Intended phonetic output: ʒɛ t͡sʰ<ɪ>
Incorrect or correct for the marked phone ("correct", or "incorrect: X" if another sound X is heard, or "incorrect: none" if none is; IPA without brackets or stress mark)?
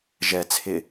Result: correct